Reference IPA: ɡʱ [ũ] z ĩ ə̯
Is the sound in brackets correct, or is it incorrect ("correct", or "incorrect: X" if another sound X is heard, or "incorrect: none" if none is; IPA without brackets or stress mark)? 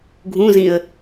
correct